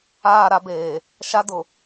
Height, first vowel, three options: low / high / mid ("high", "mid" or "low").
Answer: low